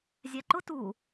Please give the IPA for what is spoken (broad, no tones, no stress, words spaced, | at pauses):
zʲæǃʊ tu